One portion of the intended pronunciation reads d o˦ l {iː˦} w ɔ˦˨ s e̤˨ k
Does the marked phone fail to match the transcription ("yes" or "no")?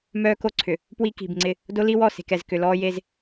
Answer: yes